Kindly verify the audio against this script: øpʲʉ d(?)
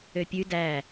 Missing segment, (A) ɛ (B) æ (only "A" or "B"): B